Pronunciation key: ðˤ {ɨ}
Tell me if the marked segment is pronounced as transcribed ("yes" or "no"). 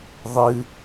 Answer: yes